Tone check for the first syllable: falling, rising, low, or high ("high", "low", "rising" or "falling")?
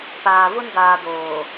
low